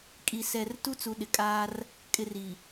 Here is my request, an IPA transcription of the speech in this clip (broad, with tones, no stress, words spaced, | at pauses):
kʼi˨sɛ˨r tu˦t͡su˨ɗɪ˨kʼaː˦r | kʼɪ˨r i˨